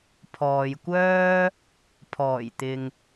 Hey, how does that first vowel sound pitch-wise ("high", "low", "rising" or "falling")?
low